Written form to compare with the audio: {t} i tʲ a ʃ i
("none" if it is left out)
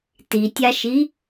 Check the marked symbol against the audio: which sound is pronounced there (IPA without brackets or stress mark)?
t